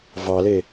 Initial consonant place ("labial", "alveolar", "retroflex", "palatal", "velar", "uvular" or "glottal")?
labial